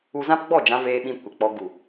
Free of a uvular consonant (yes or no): yes